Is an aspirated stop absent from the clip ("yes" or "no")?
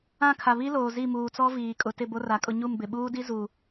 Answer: no